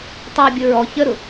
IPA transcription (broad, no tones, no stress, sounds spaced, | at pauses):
tˤ əː bʲ ʊ ɹ ɔ ç ə ɾ ʊ